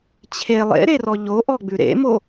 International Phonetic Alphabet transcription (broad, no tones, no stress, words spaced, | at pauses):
t͡ɕʰe lˠḛɾerɔ ʎoʔɔɡ͡bʉ ɾḛmo